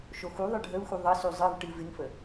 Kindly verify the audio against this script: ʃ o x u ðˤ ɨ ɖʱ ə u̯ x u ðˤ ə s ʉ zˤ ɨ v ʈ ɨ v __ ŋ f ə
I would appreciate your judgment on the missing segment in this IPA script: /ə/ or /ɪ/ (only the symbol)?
ɪ